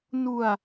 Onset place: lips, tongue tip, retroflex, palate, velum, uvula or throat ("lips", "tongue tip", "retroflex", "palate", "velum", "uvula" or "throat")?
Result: tongue tip